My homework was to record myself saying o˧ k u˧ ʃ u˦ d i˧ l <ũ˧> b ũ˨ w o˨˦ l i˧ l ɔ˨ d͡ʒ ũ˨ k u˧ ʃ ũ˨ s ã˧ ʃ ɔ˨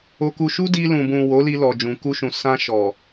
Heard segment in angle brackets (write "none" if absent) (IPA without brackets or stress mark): ũ˨